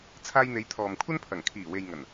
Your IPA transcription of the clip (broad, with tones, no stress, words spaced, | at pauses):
t͡sʰaː˧jn̪e˨˧j t̪ʰɔː˨mkʷʰɐ˥npʰɐ˨˩ŋ kʰiː˨˩we˨j ŋɐ˨˩n